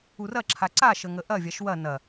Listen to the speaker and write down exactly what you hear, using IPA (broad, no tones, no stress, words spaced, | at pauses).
urɐǁʰa ǀaʃə ŋəʔɐvʲaʃ wɐ nɐ